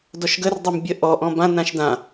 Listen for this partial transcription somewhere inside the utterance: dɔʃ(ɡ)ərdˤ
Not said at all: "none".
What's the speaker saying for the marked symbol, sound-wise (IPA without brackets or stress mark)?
ɡ